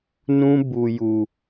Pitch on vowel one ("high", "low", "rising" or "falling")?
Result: high